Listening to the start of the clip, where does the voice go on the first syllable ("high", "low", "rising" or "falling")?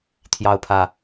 high